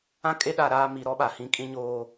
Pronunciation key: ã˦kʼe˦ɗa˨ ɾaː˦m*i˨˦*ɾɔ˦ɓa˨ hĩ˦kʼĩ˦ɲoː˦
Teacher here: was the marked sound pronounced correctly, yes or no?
yes